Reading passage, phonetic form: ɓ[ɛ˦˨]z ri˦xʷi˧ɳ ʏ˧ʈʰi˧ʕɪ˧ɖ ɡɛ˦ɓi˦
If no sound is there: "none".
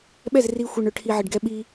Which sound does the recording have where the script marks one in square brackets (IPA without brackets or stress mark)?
ɛ˦˨